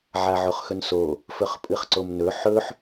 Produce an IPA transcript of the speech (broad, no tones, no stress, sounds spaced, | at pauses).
ʕ a ʕ o χ x ɵ n s o | f ɵ χ pʼ ɨ χ ǀ o m n ɵ ħ ɵ ħ